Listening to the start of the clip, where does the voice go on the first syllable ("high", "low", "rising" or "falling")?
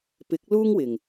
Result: rising